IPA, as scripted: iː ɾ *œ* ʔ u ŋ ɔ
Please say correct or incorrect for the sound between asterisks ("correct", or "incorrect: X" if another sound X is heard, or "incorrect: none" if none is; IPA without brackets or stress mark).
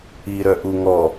correct